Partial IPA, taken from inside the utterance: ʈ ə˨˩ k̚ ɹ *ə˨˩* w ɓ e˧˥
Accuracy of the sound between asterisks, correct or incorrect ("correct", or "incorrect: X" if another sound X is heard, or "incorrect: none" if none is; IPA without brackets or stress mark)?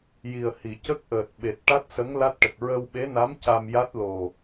incorrect: ə˧